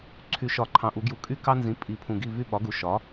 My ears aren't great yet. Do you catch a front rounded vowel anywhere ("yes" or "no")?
yes